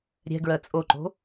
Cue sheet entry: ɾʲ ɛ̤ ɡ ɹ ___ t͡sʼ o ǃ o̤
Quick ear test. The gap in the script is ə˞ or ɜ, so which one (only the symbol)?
ɜ